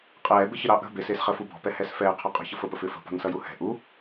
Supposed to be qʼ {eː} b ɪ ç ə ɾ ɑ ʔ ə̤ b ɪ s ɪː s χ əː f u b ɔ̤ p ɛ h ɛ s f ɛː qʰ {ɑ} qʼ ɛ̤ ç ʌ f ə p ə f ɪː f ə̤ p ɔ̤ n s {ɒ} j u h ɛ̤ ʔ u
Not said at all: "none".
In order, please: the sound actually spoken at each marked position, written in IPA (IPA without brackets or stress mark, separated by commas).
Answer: ɛː, ɔ, ʌ